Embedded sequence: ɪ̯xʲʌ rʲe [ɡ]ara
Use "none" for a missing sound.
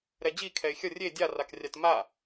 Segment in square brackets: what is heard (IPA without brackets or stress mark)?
dʲ